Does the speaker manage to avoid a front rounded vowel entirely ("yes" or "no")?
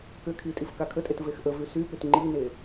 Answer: no